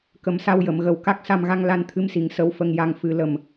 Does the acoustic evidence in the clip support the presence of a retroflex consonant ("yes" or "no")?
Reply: no